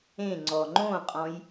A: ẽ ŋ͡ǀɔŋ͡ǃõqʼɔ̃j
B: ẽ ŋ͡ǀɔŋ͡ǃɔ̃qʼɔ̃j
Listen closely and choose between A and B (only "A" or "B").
A